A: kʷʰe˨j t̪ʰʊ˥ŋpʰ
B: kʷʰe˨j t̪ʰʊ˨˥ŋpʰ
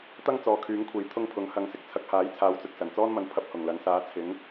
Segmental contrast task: A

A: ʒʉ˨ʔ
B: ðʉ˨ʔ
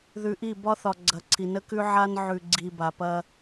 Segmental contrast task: B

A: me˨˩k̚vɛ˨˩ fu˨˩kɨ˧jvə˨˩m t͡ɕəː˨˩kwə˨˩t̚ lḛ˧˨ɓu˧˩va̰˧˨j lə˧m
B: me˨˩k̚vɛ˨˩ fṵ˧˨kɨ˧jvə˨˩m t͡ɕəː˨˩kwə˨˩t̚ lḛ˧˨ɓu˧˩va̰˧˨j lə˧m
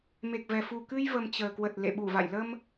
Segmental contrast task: A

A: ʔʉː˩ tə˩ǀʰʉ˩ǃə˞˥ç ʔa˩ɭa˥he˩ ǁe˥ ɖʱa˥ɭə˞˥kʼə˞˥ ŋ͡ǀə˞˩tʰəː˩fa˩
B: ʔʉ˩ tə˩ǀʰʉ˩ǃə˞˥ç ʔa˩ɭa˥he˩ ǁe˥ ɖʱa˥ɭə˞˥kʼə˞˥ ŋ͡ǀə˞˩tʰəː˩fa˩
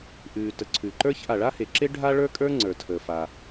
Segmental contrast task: A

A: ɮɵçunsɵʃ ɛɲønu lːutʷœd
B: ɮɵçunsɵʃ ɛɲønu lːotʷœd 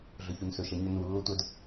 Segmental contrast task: B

